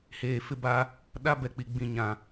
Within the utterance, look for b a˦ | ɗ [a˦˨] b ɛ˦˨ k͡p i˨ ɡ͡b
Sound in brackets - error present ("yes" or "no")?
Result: yes